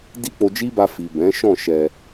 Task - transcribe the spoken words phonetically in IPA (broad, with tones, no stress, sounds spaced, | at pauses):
d i˦ k͡p o˧ d͡ʒ i˦ b a˧ f i˨ b ɛ̃˨˦ ʃ ɔ̃˦˨ ʃ ɛ˧